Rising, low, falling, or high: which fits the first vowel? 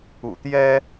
low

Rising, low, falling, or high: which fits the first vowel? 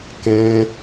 high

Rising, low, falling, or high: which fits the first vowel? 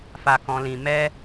low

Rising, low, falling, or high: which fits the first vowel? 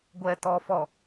low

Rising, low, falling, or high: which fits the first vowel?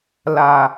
low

